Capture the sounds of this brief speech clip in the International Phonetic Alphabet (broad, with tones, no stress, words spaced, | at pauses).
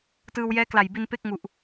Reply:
tɯː˧w jɛː˦˥kla˨˩jbi˧n pe˥˩k̚ŋu˨˩ʔ